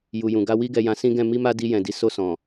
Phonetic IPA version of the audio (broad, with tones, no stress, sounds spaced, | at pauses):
j u˨ j ũ˨ ɡ a˧ w i˦ ɡ ɛ˧ j ã˧ s ĩ˦ ɡ ɛ̃˦˨ m i˧ m a˧ d i˧ j ɛ̃˨ d i˨ s o˧ s ɔ̃˨